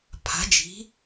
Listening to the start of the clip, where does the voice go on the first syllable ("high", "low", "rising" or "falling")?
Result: rising